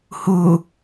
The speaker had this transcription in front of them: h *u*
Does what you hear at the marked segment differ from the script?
no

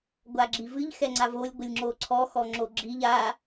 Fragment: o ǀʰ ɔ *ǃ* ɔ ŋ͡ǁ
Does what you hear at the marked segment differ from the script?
yes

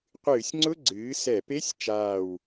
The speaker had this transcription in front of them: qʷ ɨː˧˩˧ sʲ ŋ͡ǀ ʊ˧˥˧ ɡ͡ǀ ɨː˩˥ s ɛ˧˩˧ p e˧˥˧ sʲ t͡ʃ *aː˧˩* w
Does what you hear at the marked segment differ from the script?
no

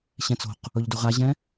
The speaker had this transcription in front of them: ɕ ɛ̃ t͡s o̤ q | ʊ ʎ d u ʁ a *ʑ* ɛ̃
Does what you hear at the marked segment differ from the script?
no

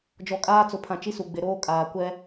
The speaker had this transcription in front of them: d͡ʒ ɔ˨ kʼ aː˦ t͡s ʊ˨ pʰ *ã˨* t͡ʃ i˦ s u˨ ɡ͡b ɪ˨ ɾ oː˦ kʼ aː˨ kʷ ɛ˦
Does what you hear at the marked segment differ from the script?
no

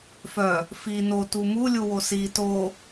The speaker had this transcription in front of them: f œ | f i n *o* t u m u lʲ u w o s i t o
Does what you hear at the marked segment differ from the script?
no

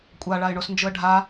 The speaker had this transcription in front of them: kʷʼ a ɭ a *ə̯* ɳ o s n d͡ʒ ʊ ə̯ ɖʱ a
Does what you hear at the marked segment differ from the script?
yes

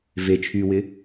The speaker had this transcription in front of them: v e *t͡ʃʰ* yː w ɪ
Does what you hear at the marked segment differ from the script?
no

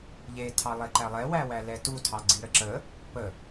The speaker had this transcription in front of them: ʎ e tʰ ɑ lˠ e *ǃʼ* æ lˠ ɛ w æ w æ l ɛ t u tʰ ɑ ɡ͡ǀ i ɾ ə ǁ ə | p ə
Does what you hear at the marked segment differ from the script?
yes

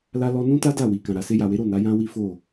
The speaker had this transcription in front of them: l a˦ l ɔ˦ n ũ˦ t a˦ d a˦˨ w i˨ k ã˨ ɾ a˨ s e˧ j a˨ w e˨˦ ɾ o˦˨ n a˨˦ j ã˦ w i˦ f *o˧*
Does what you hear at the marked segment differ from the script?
yes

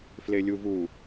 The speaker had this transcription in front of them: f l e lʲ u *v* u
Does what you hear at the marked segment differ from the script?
no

